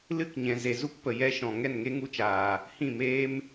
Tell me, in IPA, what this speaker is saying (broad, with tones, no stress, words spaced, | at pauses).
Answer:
lɨ˦˨kɲɛ̃˨ ze˨zu˦kpə˨ jɛ˧ʃɔ̃˨ ŋɛ˦˨nŋe˦ŋu˧t͡ʃaː˨ | hĩ˦˨meː˦m